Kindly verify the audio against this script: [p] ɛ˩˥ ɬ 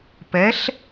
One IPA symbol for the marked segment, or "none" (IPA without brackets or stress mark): p